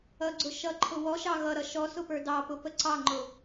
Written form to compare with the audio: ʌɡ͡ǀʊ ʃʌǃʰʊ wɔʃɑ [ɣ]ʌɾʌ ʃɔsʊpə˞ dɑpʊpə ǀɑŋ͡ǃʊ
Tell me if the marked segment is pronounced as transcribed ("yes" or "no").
yes